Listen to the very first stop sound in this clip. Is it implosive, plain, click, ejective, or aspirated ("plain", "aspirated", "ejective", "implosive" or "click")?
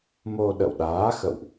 implosive